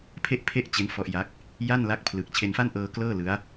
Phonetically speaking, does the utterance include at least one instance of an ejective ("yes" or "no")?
no